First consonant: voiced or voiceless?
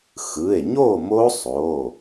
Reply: voiceless